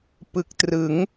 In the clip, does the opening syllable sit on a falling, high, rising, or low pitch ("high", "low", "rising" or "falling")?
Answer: low